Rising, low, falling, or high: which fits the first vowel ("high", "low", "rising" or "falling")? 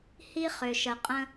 high